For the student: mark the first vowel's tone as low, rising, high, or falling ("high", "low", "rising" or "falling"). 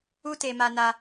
high